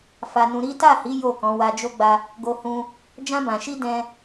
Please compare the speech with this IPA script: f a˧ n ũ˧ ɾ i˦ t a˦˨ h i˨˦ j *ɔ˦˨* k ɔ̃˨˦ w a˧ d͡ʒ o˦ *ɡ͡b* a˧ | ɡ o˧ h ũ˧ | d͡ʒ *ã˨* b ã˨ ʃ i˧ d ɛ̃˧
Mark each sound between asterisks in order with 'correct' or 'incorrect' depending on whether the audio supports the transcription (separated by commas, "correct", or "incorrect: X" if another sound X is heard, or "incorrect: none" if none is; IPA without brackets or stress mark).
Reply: incorrect: o˦˨, correct, incorrect: ã˧